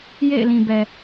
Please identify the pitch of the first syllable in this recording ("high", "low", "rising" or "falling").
falling